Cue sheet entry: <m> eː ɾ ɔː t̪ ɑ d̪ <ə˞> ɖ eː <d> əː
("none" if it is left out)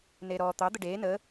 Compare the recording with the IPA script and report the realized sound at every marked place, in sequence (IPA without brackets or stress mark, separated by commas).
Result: n, ə, n